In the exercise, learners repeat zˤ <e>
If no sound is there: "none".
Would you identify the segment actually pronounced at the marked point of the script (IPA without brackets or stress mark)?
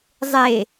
e